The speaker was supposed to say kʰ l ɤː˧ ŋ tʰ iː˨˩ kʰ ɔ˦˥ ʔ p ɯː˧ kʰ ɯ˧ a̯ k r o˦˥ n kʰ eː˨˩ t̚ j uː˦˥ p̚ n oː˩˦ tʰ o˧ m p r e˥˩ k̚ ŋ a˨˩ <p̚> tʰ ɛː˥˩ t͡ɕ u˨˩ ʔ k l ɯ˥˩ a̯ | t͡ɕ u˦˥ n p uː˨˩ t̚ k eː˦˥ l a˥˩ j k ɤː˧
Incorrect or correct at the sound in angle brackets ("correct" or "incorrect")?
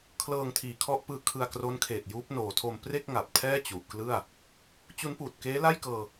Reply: correct